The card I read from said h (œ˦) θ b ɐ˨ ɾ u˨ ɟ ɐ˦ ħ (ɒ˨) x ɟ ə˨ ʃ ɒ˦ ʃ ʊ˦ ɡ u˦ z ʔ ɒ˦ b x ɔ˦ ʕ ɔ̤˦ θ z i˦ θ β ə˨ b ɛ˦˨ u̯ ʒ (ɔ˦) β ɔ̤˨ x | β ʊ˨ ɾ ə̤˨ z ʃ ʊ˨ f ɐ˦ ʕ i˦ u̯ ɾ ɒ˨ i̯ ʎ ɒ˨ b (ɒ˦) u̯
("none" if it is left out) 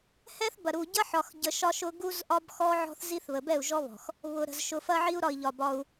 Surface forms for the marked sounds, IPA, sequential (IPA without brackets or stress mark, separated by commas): ɛ˦, ɒ˨, ɔ˦, ɒ˦